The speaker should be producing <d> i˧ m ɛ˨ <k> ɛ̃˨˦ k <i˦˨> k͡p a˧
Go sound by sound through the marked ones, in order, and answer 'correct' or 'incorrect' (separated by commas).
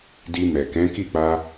correct, correct, correct